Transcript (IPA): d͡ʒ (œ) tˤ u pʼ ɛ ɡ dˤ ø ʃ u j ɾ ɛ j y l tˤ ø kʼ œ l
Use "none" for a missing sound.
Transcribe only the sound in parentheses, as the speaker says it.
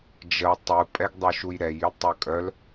ə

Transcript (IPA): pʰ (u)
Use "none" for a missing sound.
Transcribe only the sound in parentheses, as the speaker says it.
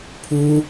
u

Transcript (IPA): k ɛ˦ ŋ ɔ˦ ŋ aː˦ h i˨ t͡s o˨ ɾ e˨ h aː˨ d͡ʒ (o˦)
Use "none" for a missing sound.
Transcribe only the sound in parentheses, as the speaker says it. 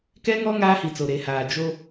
o˦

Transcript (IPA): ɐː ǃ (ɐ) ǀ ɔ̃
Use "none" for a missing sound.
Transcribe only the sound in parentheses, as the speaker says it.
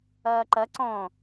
ɐ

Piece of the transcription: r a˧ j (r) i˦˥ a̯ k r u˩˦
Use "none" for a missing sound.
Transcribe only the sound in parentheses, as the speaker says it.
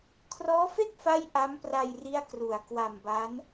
r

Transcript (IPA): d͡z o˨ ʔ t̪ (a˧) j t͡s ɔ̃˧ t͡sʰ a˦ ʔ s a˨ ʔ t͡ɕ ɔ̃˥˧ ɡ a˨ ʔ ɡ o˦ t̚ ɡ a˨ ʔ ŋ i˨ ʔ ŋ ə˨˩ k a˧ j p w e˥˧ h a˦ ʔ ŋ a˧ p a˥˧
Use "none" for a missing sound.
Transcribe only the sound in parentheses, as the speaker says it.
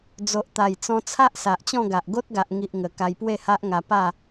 a˨˩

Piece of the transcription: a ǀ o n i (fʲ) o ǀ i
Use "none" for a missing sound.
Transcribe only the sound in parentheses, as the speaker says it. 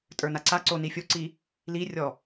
fʲ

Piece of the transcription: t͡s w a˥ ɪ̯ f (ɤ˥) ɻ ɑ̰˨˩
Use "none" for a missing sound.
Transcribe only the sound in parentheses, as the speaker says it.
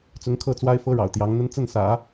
ɤ˥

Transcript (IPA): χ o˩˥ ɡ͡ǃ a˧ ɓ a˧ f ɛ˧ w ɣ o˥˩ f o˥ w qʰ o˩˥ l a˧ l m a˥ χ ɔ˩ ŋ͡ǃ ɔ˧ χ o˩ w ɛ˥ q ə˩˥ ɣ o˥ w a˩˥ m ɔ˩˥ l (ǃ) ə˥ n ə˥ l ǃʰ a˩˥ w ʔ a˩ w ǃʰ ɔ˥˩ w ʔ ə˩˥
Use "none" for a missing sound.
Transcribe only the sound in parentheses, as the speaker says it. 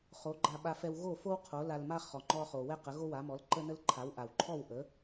ǃ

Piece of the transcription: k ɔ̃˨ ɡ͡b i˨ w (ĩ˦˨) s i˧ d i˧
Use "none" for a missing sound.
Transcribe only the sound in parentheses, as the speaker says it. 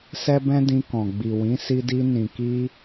ĩ˨˦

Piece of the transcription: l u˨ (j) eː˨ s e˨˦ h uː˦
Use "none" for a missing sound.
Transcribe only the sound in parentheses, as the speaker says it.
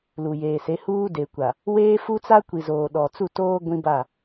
j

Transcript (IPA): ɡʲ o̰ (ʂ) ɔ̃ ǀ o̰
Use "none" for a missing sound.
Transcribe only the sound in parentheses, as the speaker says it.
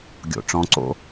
ʈ͡ʂ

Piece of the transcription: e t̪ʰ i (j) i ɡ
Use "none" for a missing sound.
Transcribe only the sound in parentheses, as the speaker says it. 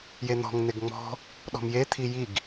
j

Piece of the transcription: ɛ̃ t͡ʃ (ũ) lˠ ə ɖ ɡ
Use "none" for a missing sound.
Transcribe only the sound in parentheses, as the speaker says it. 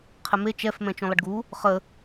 ũ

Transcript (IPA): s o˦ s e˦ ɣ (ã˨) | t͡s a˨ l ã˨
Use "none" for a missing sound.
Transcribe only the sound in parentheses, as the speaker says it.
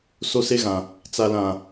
ã˨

